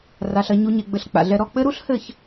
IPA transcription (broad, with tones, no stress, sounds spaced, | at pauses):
r a˩˧ ɬ ɐ˩˧ ɲ u˩˧ ɲ e˩ ɡ͡b ɘ˩˧ ɬ k͡p a̰˩ ɮ ɛ˧ ɾ ɔ˥˨ k͡p ɘ˥ ɾ u˥ ɬ h ɘ˥˨ ç